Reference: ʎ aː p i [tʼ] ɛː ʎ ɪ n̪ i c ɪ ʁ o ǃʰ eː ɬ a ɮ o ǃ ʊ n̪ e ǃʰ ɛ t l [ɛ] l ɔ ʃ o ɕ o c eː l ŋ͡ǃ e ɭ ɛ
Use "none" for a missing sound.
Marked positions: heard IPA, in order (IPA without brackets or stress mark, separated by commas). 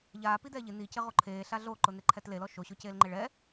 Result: d̪, e